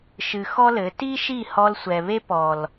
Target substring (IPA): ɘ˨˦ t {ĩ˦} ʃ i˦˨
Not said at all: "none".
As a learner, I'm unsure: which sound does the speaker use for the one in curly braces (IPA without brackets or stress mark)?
i˦